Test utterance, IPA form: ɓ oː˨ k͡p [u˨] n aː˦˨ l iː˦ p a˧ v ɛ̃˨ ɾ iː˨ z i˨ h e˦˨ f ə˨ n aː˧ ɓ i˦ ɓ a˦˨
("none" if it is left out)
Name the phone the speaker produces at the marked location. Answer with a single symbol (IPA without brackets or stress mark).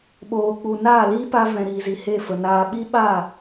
u˨